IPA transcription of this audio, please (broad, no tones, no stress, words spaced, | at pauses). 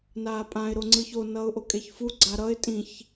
naːpʼãɪ̯ ɾoŋ͡ǀɯço nʌːʊ̯ʔokʼeçfu ɡ͡ǀaɾʌɪ̯ tʼĩç